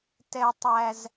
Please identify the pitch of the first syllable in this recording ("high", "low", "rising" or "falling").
high